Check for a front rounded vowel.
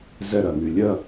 present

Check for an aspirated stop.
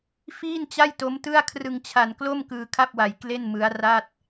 present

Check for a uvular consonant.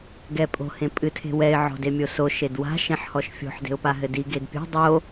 absent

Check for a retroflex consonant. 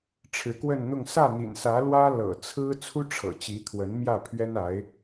present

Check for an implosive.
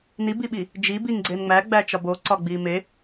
present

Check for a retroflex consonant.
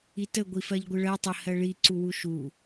present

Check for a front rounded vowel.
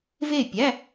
absent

